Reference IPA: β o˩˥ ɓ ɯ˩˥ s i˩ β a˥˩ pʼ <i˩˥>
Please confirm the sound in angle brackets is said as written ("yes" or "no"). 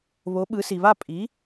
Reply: yes